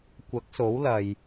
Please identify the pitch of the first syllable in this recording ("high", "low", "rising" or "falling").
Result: rising